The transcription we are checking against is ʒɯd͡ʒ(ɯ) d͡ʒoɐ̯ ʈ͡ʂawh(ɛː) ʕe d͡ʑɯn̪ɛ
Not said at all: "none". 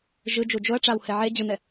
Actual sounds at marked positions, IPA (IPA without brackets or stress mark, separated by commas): u, ɛ